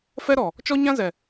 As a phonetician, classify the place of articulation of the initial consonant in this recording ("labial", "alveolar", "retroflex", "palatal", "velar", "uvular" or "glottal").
labial